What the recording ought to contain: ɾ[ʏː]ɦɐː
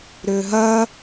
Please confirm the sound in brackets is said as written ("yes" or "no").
yes